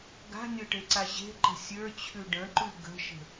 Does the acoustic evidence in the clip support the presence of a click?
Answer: yes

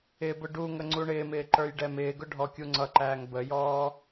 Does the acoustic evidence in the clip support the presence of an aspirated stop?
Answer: no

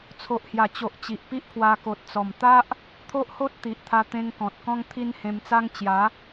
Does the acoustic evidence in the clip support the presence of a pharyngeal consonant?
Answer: no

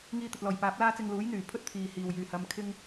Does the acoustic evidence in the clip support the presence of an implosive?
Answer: no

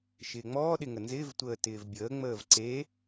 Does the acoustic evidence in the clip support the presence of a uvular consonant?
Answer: no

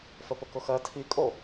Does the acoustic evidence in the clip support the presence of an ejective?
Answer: yes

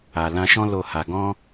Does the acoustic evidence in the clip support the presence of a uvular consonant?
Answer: no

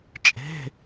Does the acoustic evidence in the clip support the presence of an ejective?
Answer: yes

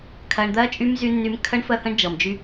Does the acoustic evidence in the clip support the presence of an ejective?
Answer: yes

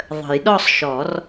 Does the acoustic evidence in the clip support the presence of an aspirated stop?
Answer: no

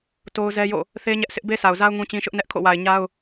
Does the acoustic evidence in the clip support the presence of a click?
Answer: no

